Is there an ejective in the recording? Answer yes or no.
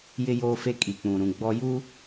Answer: yes